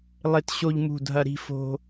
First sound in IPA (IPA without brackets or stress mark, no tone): lˠ